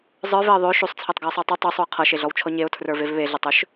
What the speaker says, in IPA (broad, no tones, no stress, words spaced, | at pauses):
zˤə˞veə̯ ðˤø ʃusˤt͡sʰetˤɡʌɪ̯sˤə˞ tˤu tˤusˤuə̯ qʰʌʃeɮɔwt͡ʃʰɔ ɲeʊ̯tʰrə˞vev βeɮetˤøʃ